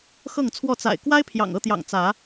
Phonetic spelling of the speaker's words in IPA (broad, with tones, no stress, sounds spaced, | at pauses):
x ɤ˥˨ ŋ t͡sʰ w ɔ˥˨ t͡s a̰˨˩ ɪ̯ k w a˦ ɪ̯ pʰ j ɑ̰˨˩ ŋ ɤ˥˨ t̪ j ɑ̰˨˩ ŋ t͡s ä˨˦